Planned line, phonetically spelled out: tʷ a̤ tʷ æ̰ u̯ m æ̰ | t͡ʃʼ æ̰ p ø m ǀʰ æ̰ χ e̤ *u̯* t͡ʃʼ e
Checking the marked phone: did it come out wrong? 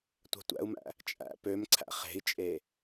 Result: yes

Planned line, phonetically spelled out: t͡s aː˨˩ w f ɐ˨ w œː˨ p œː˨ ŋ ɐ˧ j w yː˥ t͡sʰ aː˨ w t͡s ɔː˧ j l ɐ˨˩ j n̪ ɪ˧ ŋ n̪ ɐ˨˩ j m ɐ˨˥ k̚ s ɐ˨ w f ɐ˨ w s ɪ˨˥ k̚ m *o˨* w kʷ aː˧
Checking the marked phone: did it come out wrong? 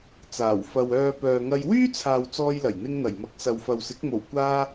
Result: yes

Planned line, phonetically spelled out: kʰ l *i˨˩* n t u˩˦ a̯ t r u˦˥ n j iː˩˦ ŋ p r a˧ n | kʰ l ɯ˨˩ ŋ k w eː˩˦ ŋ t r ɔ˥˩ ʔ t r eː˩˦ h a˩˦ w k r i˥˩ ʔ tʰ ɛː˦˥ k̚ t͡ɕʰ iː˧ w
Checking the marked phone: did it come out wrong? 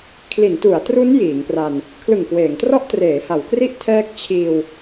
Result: yes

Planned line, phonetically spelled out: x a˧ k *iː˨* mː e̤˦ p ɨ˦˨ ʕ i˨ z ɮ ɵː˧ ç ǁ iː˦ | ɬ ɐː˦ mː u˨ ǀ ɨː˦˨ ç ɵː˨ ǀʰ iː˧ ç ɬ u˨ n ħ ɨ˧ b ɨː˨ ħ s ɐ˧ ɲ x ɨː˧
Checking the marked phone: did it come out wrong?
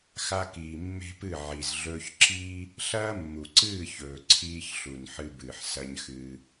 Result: no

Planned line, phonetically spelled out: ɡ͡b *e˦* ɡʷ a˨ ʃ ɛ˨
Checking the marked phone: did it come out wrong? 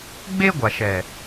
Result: no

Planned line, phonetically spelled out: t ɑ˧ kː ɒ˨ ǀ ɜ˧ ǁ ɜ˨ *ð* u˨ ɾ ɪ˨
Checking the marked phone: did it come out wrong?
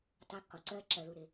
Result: no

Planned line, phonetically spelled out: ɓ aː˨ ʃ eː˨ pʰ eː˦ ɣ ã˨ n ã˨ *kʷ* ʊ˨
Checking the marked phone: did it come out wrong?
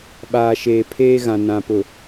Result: yes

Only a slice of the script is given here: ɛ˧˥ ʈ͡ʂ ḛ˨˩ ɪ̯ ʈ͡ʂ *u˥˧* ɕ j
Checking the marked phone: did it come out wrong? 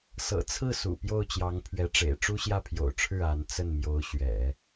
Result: yes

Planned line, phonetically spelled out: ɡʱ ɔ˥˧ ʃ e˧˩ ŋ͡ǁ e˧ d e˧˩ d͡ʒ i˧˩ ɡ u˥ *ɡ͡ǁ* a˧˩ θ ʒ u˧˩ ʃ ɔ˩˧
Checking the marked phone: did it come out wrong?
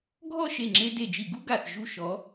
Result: yes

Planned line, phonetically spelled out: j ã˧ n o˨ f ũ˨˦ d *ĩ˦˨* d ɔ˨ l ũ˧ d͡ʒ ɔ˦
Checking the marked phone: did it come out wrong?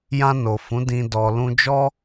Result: yes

